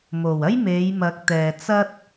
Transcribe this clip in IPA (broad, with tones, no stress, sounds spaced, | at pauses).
m o˨˩ w ɐ˥ j m e˨˧ j m ɐ˨˥ k̚ t̪ ɛː˨ t͡s ɐ˥ t̚